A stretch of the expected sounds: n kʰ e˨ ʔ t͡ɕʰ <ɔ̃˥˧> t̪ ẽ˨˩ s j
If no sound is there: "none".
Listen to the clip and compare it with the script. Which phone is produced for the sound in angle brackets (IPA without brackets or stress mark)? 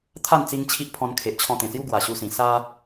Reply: ɔ̃˧